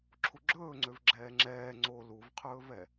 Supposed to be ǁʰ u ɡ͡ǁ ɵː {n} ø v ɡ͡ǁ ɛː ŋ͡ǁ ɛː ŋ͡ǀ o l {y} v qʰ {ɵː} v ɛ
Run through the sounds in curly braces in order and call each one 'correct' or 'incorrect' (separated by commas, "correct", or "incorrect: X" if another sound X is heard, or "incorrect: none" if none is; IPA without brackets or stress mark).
incorrect: ŋ͡ǀ, incorrect: u, correct